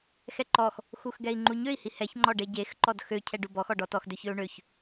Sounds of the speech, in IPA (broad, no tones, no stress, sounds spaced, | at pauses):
x ɛ ǃ ɔ x | x u x ɡ ɛ i̯ ŋ͡ǃ u ɲ ø i̯ h i h ɛ ç ŋ͡ǃ ɔ ɖ e ɟ e x ǃ ɔ d x ø cʰ ɛ ɖ u b ɔ x ɔ ɖ ɔ t ɔ x d ø ç ø u̯ ɳ ø ç